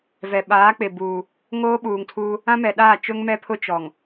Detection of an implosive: present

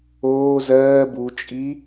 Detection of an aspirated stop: absent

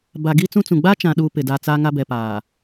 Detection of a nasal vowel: present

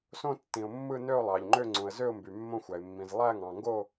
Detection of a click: present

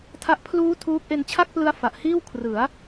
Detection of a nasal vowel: absent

